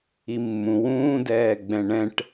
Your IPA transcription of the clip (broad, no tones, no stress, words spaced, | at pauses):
imːũ wũːdɛːɡ͡bɛ̃ ɳɛ̃ʈ